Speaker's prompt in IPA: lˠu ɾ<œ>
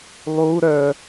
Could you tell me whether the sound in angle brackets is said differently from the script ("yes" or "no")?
no